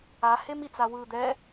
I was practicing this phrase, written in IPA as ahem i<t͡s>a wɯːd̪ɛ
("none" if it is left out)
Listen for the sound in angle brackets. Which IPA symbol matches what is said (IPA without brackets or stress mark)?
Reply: t͡s